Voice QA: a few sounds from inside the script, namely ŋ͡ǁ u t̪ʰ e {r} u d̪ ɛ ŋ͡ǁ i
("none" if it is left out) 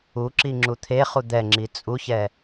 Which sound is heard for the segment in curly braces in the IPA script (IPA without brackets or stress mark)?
χ